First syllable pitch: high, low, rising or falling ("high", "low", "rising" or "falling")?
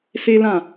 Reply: high